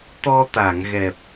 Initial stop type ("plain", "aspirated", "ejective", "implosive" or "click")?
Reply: plain